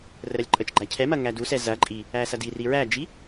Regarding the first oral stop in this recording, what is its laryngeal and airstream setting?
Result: click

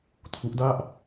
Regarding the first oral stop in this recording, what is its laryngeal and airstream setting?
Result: aspirated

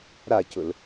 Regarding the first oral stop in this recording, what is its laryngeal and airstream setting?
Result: plain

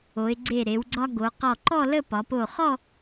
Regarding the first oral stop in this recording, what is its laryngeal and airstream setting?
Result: click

